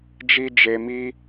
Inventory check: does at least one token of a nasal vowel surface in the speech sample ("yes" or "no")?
no